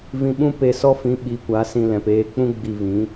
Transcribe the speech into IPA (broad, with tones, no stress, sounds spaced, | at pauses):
v ĩ˧ ɓ ũ˦ p e˧ s ɔ˦ f ĩ˨˦ ɓ i˨˦ kʷ a˨˦ s ĩ˧ l ɛ̃˨ p eː˦ k͡p ũ˦ ɡ͡b i˧ v ĩ˨˦